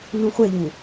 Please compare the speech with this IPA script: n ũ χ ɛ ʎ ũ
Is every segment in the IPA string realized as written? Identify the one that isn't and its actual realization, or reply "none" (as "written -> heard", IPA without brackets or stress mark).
χ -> χʷ